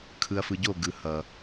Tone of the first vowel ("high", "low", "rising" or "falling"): low